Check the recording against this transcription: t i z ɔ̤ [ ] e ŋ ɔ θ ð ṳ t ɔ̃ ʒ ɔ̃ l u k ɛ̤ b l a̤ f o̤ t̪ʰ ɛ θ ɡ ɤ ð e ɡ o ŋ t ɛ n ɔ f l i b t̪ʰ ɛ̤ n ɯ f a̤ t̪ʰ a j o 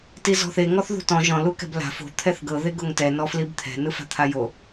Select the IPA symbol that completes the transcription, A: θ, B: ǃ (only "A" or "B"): A